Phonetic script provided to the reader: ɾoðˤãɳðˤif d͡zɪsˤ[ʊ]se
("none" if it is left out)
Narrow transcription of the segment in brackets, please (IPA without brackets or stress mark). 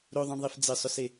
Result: ʊ